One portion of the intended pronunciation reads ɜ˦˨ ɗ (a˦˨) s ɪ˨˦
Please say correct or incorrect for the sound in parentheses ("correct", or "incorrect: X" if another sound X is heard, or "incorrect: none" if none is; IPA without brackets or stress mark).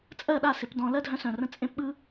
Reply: correct